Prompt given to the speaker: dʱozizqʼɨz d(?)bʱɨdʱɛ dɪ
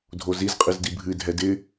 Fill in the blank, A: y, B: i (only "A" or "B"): B